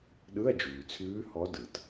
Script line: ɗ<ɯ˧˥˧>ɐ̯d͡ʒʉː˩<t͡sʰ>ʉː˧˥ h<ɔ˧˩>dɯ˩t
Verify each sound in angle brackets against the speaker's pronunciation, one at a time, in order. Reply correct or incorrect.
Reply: correct, correct, incorrect

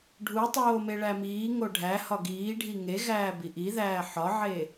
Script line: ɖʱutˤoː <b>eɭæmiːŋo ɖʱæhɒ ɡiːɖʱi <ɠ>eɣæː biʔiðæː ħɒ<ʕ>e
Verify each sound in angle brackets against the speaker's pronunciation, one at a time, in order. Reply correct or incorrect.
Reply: incorrect, incorrect, correct

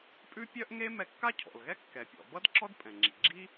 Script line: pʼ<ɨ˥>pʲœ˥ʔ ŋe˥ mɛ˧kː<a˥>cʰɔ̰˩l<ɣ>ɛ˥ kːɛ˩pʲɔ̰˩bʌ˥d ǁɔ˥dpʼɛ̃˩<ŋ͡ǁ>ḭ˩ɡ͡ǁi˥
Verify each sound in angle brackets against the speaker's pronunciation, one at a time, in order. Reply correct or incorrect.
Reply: incorrect, correct, correct, correct

